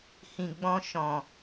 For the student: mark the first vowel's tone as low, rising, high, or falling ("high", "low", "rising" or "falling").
low